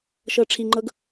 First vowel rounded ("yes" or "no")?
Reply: no